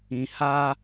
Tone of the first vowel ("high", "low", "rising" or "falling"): low